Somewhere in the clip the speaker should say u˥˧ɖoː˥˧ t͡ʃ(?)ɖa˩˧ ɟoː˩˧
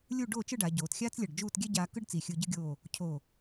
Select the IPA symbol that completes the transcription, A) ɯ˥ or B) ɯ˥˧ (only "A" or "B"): B